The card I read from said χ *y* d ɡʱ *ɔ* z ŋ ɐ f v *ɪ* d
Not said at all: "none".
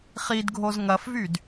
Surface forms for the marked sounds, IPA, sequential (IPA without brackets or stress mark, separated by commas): i, o, y